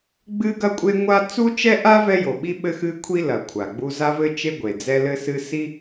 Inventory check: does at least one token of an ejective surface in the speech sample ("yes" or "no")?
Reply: yes